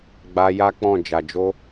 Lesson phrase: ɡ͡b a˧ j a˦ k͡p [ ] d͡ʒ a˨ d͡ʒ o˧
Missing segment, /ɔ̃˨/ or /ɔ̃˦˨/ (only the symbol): ɔ̃˦˨